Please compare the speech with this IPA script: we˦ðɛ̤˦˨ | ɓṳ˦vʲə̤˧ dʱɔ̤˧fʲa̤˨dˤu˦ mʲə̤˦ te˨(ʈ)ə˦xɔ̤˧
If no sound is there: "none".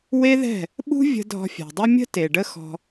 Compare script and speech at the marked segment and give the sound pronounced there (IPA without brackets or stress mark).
ɖ